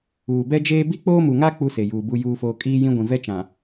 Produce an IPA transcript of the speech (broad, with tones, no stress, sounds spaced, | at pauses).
uː˨ b ɛ˦ d͡ʒ eː˦ b i˦ k͡p oː˦ m u˨ ŋ a˦ k͡p u˦ s e˨ j uː˨ b u˨ j uː˨ f oː˨ kʼ iː˦ j ĩ˦ ɡʷ ĩ˨ v ɛ˦ t͡ʃ ã˨